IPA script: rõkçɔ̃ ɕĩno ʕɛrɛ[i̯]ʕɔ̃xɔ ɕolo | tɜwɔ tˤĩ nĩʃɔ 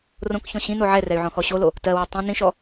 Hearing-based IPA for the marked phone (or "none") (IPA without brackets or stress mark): y̯